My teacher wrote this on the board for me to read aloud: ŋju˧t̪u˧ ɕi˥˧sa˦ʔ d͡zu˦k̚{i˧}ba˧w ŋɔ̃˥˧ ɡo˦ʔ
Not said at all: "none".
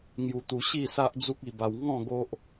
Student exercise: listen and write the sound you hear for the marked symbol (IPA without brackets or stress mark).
i˧